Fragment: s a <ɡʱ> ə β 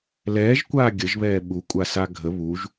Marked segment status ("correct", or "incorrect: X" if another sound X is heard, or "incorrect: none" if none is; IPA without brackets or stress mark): correct